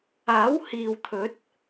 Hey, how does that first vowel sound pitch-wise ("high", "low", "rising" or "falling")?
rising